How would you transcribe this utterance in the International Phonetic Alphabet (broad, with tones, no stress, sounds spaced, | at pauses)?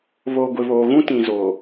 β oː˨ ɡʷ ɪ˨ β oː˨ ɣ ũ˦ t ĩ˨ z oː˨